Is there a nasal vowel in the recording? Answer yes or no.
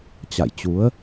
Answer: no